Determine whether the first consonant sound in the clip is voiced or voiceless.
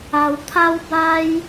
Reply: voiced